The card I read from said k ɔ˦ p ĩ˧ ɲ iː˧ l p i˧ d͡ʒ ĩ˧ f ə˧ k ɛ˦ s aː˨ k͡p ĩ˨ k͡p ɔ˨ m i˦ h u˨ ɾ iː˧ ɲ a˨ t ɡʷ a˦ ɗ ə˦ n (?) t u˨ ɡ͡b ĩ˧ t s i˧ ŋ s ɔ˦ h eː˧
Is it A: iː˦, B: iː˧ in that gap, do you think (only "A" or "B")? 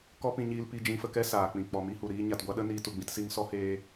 B